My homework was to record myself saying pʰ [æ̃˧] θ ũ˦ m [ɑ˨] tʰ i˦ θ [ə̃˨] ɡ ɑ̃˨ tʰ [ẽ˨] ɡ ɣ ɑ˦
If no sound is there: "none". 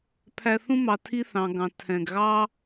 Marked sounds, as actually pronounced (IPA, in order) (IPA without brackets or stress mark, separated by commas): æ˧, ɑ˨, ɑ̃˨, ɛ̃˨